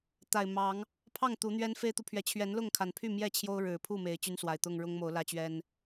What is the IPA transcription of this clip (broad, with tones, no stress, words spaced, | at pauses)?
t̪a˨˩ɪ̯mɑ˨˦ŋ | pʰɑ˥˨ŋ t̪u˨˦n̪ɥɛ˦n fe˦ɪ̯t̪u˨pʰɥɛ˨˦ t͡ɕʰɥɛ˨˦nlʊ˥˨ŋkʰa˨˩npʰy˥˨ mjɛ˥˨ t͡ɕʰjo˦ʊ̯ ɻɻ̩˨˩pʰu˥˨ me˨˦ɪ̯t͡ɕy˦nswa˨˩ɪ̯t̪ʊ˥˨ŋ ɻʊ˦ŋmo˨˦ʊ̯lä˦ t͡ɕɥɛ˦n